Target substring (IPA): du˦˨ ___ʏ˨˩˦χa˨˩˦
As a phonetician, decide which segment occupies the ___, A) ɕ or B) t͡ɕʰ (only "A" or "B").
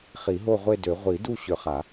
A